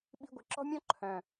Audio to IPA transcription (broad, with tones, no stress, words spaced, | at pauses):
ɓi̤˥ɡʷɪ˧ ǁɔ̤˥mʲɔ̃˥ ǃʰœ̃˨˩